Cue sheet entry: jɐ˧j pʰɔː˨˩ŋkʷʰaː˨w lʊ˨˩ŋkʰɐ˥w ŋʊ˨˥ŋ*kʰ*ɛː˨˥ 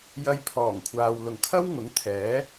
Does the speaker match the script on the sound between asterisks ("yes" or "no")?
no